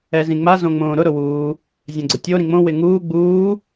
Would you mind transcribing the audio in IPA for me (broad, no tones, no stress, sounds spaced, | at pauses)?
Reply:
ɛ z ĩ ŋ͡m a z õ ŋ͡m õː ɾ ʊ ɾ ʊ w uː | zʲ ɛ̃ ɡ͡ǀ ʊ tʲ o ɾ ĩ ŋ͡m õ w ɪ ŋ uː ɡ͡b uː